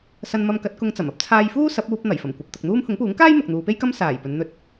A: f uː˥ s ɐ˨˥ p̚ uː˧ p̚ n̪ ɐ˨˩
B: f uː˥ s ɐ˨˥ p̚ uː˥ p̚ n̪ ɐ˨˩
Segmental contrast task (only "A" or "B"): A